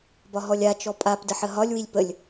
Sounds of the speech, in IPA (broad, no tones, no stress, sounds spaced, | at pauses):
b ɒ ɦ ɔ lʲ a t͡ʃ ɔ pʼ a p d ə ħ ə ɦ ɒ lʲ w i lʲ p ə lʲ